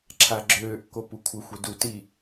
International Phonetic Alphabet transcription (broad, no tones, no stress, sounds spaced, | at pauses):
ǁʰ a ɡ͡ǁ øː ʔ k o p u kʷʰ ə xʷ e d u t i